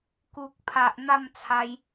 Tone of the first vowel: low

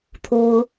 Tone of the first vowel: high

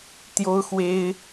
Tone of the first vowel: high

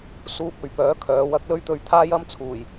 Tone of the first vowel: high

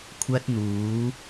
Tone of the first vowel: high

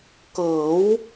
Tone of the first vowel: rising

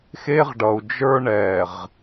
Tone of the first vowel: high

